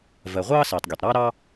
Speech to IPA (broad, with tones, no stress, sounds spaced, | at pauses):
v ɜ˩ ʁʷ ɑː˥ s iː˩ tˤ ɡʲ a˩ tˤ ɾ ɑː˥ ɾ ɑ˥